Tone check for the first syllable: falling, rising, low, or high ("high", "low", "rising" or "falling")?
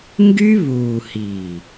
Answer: high